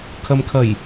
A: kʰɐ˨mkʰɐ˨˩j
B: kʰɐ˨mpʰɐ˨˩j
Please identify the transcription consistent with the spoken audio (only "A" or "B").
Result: A